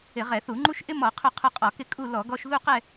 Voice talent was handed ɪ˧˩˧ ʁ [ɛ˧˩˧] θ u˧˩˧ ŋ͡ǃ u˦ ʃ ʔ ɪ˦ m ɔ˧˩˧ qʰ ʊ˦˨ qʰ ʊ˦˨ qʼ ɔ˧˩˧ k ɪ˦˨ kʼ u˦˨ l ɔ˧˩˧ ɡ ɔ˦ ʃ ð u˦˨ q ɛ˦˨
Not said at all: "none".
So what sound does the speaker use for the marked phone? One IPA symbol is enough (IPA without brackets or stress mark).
ɛ˧˩˧